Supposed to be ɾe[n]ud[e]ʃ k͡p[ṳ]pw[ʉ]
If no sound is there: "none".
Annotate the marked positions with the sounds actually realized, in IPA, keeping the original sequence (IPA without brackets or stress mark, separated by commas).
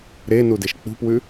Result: n, e, ṳ, ʉ